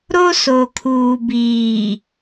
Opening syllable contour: high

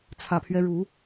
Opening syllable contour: low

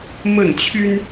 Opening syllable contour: falling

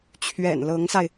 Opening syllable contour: low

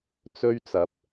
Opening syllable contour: high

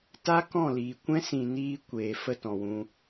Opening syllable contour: high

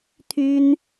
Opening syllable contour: high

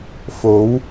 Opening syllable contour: rising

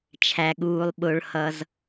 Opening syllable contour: low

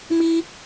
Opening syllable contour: high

